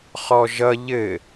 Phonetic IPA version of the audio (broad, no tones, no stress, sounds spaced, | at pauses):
χ ɔ ʒ ʌ ʎ ɘ